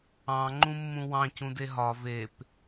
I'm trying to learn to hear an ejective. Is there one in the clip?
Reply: no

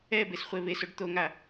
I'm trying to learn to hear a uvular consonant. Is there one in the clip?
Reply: yes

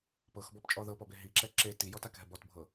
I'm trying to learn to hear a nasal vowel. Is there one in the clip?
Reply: no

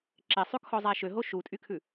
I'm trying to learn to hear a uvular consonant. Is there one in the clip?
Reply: no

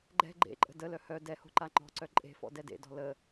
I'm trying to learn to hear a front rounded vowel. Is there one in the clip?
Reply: yes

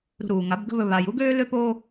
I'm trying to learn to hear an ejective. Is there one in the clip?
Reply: no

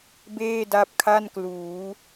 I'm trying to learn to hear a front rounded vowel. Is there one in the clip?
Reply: no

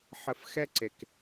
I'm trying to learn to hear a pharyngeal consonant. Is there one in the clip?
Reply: yes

